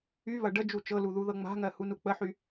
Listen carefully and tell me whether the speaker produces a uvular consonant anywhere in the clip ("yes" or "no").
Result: no